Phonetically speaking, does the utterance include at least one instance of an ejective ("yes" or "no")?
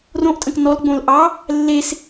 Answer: yes